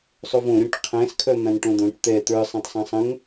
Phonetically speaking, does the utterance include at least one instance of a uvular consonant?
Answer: yes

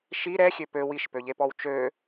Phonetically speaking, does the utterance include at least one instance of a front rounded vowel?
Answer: yes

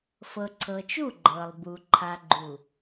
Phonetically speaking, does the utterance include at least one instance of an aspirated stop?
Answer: yes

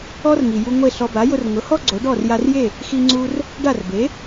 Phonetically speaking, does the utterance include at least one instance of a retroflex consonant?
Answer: yes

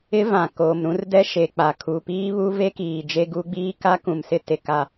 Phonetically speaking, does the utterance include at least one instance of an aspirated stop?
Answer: yes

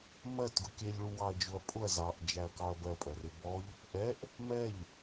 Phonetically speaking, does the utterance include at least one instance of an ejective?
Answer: yes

